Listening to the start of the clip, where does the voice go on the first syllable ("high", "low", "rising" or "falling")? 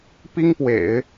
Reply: high